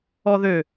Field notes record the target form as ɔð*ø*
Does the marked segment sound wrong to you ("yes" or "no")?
no